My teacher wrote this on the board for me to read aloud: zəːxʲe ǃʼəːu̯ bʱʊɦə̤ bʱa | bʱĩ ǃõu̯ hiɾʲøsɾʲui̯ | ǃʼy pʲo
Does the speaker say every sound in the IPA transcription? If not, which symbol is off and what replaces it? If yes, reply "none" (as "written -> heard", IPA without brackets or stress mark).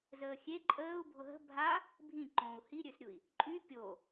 none